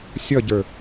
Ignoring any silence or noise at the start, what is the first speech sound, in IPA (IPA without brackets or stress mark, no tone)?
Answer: sʲ